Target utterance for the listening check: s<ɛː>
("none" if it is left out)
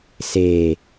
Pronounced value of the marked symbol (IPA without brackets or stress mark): eː